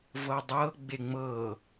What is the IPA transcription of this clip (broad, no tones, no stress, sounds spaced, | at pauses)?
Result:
v ɤ dˤ ɤ ɡ͡b e ŋ͡m ɤ